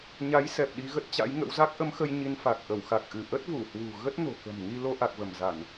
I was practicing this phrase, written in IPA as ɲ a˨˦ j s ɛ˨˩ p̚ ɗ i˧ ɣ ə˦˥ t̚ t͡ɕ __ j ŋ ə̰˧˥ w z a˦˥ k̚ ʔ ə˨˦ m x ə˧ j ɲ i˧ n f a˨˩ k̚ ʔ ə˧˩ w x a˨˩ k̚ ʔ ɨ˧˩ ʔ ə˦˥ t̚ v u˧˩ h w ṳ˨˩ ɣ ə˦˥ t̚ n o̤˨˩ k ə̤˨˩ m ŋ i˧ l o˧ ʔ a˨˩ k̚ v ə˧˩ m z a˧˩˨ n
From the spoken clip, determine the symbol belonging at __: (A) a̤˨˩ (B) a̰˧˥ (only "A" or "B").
B